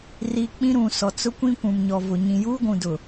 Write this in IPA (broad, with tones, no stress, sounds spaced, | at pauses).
r i˨ k͡p ĩ˦ ɾ ũ˨ s ɔ˨ t͡s ʊ˦ kʷ ĩ˦ kʷ ũ˨ m ɲ ɔ˨ v ʊ˨ ɲ ĩ˨ j uː˦ ɡʷ ũ˨ d ʊ˨